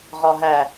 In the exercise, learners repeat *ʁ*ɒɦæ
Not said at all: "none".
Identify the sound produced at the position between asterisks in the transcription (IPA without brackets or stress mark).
ʁ